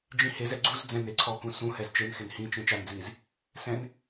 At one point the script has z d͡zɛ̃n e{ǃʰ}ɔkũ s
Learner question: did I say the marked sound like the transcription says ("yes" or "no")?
no